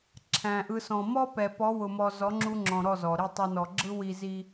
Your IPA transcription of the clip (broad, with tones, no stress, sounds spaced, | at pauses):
ǁʰ æ̃˨ ʔ ɯ˧ s ɔ̃˨ m ɔ˦ p ɛ˨ p ɔ˨˦ w ʊ˨ m ɔ˨ z ɔ˨˦ ŋ͡ǁ u˧ ŋ͡ǁ ɔ̃˨ ɾ ɔ˦˨ z ɔ˨ ɾ i˦˨ tˤ ɑ˧ n ɔ˨ ɡ͡ǁ ɯ˦ w i˦ z i˦